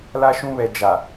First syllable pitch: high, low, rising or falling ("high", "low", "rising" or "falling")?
high